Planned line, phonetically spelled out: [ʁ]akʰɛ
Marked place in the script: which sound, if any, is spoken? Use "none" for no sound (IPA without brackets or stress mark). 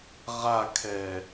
ʁ